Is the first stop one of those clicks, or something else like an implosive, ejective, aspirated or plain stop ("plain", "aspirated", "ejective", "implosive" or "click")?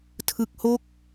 aspirated